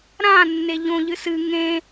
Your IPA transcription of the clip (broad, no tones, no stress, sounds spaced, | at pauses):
ɾ ã nː e ʎ õ ʎ ɨ s ɨ ŋ ẽ